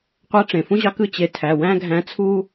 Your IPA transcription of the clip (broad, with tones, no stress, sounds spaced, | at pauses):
qʷ æ˧˥ ʈ͡ʂ ẽ˩ f ũ˥ ʑ ɑ˧˥ k ɯ˧˥ t͡ɕ e˩˧ tʰ æ˩˧˩ w æ̃˥ ɡʱ æ̃˧˥ t͡sʰ u˥